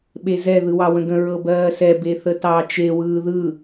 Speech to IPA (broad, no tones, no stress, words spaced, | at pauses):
ɓezɛ ðɯwɑwə̃ɡə̃ ɹɤbɜːsɛ beθətɑ t͡ʃe wɯːðɯ